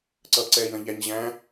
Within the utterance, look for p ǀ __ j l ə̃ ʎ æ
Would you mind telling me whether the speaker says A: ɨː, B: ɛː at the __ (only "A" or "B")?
B